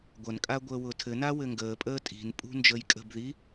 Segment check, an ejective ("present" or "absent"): present